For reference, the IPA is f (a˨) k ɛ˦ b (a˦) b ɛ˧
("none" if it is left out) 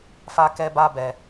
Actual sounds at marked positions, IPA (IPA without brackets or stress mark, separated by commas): a˦, a˦